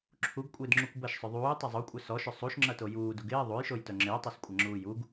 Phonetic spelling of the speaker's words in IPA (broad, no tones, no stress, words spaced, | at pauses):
ǁʰuɡkʷʼɪːdŋ͡ǁukʷ bɐʃsˤʏ ðˤuːtˤɐ zˤokʷʼœ sɔʃʏ sˤuʃŋ͡ǁɐto juːduɡ ɪː ðˤujʃojtœ ŋ͡ǁɪːtˤoskʷʼɐŋ͡ǁuː juɡ